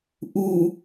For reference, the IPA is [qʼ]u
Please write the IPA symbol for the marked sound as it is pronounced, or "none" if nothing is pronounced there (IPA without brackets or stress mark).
ʔ